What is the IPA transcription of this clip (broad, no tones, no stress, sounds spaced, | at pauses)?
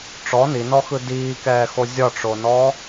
ʈ͡ʂ ɔ n i n ɔ x ɯ d iː k ɛː x o zʲ ɒ ʈ͡ʂ o n ɔ